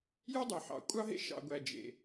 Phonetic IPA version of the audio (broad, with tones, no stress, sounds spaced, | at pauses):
j u˦ dˤ ø˨ ħ ɑ̰˨ kʷʼ ɑ˦ ɦ ḛ˦ ʃ ɑ̰˨ ɡʷ æ˨ d͡ʒ ḛ˨